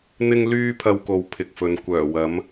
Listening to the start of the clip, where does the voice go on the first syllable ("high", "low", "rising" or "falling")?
high